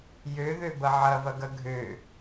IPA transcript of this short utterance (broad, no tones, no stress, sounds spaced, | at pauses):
j ø ð ø b ɐ ʕ ɐ v ɐ ɡ ɐ ɡʱ ø